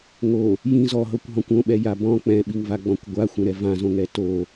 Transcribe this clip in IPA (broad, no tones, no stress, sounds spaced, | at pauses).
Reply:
ŋ o | j ĩ z ɔ ɦ ɤ kʷ ɦ ɔ̃ kʷ õ ɓ ɛ j a b ɔ̃ k͡p ɛ̃ ɓ i ŋ v a ɡ͡b ɔ̃ kʷ ɡʷ a xʷ ɛ̃ ɾ ɛ v ã z õ ŋ ɛ t o